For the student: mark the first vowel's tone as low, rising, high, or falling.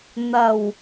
low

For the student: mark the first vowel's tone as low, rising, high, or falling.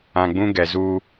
low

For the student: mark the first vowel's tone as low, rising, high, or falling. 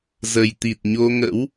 low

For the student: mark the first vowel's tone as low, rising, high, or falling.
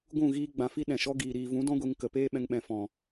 falling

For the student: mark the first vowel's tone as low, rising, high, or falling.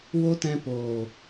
high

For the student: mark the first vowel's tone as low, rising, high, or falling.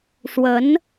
rising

